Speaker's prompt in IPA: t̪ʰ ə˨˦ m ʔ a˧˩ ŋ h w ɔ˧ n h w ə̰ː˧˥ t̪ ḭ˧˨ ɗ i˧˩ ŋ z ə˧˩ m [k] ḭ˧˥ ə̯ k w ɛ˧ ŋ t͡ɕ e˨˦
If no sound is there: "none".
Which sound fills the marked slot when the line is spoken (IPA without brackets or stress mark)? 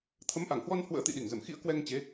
x